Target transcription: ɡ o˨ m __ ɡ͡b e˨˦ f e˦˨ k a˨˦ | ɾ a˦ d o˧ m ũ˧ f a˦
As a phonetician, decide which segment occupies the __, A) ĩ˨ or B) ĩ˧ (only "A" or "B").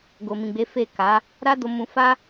A